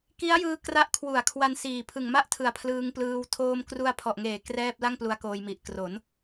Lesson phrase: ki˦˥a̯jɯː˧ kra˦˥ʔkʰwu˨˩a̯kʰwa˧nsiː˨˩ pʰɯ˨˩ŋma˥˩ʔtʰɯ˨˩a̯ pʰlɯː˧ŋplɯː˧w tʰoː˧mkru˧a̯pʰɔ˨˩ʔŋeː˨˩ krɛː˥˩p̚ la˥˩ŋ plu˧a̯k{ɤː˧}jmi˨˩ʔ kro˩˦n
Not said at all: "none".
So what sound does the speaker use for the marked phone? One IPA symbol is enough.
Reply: oː˧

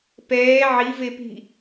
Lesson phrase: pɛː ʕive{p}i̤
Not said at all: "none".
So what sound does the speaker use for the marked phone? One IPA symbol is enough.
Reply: p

